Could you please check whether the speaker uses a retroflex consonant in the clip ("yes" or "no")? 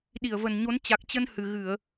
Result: no